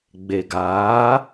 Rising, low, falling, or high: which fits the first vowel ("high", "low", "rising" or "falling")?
low